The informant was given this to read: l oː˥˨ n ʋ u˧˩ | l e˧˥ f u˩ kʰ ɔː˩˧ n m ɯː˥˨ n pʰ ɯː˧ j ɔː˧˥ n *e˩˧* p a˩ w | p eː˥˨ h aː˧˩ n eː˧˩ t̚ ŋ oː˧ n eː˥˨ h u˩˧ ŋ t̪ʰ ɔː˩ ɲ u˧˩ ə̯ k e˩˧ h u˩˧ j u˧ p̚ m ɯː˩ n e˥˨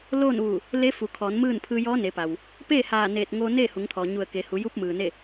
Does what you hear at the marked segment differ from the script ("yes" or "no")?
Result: no